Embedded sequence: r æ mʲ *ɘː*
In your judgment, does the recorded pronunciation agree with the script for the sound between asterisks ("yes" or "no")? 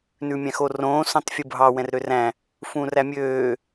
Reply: no